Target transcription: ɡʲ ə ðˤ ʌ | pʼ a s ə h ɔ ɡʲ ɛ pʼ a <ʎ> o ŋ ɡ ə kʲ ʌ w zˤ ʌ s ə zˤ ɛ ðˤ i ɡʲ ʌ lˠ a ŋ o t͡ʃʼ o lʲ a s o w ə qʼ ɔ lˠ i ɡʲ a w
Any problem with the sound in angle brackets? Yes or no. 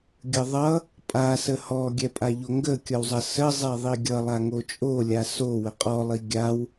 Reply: no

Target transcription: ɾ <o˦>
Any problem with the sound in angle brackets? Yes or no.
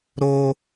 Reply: no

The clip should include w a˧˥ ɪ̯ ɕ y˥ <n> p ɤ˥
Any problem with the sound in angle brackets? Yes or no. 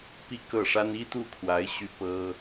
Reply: yes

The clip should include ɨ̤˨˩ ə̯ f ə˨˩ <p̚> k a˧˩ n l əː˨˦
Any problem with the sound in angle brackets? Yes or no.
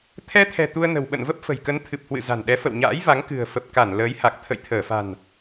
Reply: no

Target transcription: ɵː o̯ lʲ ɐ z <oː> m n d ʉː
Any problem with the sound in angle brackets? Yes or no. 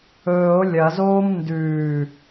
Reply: no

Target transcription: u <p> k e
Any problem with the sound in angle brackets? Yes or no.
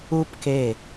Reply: no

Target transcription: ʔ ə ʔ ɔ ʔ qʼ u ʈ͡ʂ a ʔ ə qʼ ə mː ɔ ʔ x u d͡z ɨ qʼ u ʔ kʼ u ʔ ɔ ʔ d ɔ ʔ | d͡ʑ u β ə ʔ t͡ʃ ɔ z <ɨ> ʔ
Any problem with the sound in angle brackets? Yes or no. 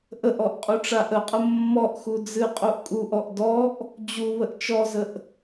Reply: yes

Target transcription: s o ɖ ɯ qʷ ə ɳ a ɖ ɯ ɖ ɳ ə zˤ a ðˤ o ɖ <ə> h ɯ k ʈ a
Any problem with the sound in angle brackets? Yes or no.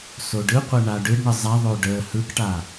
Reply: no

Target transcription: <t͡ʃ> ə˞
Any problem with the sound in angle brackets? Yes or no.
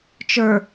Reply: no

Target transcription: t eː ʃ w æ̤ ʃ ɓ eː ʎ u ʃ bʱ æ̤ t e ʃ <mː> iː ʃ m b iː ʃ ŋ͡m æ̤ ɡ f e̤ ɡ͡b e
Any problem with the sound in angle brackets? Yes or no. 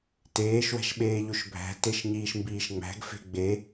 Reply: yes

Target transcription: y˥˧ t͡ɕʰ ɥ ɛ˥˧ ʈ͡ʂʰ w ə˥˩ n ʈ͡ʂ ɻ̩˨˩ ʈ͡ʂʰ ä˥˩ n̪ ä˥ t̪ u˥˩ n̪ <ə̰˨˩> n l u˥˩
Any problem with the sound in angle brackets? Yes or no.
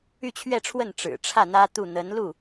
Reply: yes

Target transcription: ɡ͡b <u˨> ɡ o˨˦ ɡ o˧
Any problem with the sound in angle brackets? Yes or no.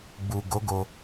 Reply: no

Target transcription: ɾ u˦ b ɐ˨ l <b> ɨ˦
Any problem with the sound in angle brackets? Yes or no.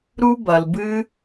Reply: no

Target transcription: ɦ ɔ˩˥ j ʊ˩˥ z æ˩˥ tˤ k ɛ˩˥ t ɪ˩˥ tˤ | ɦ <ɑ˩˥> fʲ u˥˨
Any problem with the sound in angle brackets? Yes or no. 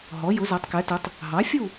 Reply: no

